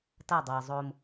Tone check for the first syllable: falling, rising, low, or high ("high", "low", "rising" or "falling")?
falling